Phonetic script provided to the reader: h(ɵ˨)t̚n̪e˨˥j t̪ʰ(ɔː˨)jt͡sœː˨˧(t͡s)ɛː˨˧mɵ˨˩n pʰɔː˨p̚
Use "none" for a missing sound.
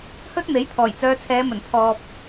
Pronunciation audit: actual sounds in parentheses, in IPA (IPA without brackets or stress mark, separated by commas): ɵ˥, ɔː˨˩, t͡sʰ